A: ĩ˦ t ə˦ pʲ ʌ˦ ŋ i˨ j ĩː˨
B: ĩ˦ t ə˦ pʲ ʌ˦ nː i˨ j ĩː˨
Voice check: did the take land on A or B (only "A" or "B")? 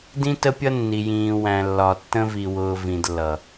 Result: B